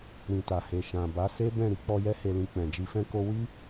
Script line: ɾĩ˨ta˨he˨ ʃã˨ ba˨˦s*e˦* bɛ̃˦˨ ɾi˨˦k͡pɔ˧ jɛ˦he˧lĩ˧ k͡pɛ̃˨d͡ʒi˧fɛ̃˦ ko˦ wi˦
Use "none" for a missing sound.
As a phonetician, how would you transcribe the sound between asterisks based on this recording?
e˦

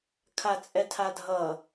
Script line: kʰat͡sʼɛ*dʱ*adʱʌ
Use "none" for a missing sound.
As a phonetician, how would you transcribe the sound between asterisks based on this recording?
tʰ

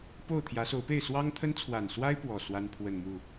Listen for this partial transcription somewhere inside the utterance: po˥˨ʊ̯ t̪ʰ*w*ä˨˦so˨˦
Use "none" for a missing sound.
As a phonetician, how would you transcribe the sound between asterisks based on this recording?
j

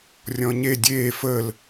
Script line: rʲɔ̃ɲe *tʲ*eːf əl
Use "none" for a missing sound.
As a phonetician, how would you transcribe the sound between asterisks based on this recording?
dʲ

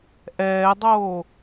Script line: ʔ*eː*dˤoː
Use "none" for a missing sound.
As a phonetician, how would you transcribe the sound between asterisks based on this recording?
ɛː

